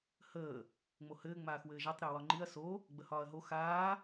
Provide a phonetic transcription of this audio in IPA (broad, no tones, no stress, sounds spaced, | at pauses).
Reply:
h əː | ŋ͡m o h ɘː ŋ͡m aː x w ɘː ʒ a tˤ ɾ ɘː w ɒ ŋ͡ǃ i ɐ̯ s o | ɡ͡b ə h ɒː ɐ̯ ɦ o x aː